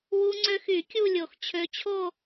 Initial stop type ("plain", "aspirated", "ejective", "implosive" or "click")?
click